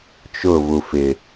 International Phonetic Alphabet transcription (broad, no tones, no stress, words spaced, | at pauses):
t͡ʃʊ vufɪ